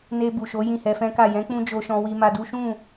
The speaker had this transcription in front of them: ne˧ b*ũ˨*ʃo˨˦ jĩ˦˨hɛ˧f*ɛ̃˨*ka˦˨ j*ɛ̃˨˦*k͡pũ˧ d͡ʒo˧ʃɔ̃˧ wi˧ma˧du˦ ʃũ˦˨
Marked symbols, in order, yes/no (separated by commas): no, no, yes